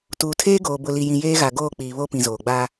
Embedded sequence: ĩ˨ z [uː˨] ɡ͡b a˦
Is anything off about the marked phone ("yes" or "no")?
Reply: yes